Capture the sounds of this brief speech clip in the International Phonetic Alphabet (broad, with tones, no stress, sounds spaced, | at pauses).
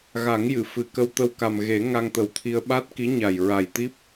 ɣ a˨˩˦ ŋ j ɨ˨˩˨ f ɨ˨˩ k ə˧ w t̪ ə˧ w k a˨˩ m ɣ e˨˩˦ ŋ a˧ ŋ t̪ ə˨˩ w t̪ʰ i˧ ə̯ ɓ a˦˥ t̚ k i˧˥ ɲ a˨˩ j ɹ a˨˩ j t̪ i˦˥ p̚